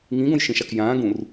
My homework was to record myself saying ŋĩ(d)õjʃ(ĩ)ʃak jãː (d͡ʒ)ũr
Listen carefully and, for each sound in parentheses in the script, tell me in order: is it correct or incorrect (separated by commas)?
incorrect, correct, incorrect